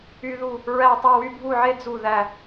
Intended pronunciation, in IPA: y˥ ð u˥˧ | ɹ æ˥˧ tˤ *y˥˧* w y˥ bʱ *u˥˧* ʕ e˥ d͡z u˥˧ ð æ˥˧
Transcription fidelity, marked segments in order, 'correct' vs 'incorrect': correct, correct

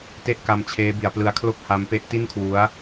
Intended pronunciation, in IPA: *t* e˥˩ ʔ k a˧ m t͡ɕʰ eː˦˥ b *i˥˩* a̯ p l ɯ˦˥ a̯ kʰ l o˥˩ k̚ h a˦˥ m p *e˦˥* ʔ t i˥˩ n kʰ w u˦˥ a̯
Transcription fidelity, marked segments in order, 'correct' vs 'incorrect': correct, incorrect: i˩˦, correct

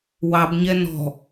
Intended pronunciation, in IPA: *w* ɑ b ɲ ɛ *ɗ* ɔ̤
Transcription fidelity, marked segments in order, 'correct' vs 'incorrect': correct, incorrect: n

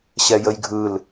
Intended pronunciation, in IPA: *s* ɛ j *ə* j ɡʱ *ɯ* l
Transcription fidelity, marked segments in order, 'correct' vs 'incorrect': incorrect: ɕ, correct, correct

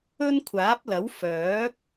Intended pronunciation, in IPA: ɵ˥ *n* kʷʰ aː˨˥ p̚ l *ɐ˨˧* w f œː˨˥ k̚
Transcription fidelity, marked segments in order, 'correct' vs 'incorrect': correct, incorrect: ɐ˨˥

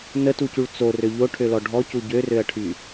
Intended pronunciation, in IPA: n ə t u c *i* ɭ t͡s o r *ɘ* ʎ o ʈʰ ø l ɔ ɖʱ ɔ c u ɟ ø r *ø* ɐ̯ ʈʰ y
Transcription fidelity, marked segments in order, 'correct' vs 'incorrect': incorrect: y, incorrect: ø, correct

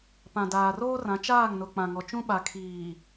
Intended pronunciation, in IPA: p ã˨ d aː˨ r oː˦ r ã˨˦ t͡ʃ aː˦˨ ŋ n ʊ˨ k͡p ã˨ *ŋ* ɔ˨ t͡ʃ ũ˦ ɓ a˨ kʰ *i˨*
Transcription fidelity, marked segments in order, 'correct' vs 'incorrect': correct, incorrect: iː˨

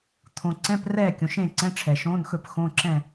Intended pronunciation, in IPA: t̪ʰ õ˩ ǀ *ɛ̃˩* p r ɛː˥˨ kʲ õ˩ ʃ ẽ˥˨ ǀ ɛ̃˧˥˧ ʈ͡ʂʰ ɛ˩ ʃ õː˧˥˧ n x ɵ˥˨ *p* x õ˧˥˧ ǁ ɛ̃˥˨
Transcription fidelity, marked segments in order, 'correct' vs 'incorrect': incorrect: ɛ̃˧˥˧, correct

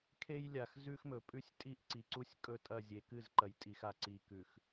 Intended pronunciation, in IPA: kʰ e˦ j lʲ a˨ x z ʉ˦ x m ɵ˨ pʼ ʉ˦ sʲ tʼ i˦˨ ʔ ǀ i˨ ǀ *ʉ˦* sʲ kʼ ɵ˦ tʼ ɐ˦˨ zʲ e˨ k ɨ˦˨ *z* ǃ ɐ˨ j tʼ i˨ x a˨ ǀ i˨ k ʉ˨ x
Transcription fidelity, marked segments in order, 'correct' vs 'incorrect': incorrect: u˦, correct

